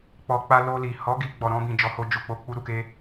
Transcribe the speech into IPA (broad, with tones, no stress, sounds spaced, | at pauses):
k͡p ɔ˧ k͡p a˧ l o˧ l i˨ h ɔ˨˦ ɡ i˧ ɡ͡b ɔ˨ ɾ ɔ̃˧ b ĩ˨ d͡ʒ ɔ˨˦ h o˧ d͡ʒ u˨ k͡p o˧ k͡p u˦ ɾ u˧ k e˦